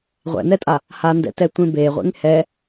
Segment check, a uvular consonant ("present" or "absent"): present